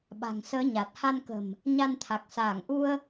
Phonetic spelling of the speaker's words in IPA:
ɓ a̤˨˩ ŋ s əː˨˦ ɲ a˨˩ t̚ h a˧ n k ə̤˨˩ m | ɲ a˧ n t̪ʰ a˨˩ k̚ s aː˧˩ ŋ ʔ u˧ ə̯

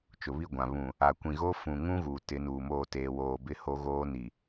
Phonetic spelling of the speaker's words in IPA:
t͡ʃ ʊ˨ β i˦˨ ɡʷ ã˨ β ũ˨ | a˨ kʷ ĩ˨ ɣ o˦ f ũ˨ ŋ ũ˦ ɣ uː˨ t ɪ˨˦ n uː˨ m oː˦˨ t eː˨ w oː˨ b ɪ˦ h o˦ ɣ oː˦ n i˨

